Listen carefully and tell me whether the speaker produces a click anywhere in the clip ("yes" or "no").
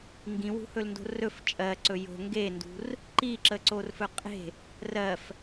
yes